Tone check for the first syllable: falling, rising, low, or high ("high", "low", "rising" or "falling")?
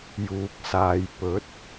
low